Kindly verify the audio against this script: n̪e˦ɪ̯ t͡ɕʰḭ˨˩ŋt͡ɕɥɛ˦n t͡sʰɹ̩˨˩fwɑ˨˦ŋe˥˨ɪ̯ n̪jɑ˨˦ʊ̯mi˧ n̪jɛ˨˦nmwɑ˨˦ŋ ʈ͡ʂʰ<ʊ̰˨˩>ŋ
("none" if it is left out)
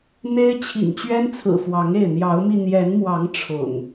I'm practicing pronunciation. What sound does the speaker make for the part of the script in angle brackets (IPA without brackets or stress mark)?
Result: ʊ̰˨˩